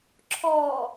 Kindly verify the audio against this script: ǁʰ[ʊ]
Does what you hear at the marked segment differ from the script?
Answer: yes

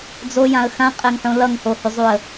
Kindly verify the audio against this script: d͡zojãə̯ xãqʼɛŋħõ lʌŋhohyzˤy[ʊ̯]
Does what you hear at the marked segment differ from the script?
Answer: yes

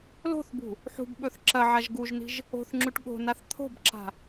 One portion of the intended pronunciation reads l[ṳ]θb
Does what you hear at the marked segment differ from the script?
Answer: yes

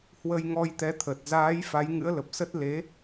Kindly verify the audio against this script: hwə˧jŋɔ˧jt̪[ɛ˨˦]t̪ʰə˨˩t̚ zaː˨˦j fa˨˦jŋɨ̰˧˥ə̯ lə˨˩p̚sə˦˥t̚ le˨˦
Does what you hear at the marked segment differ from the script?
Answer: no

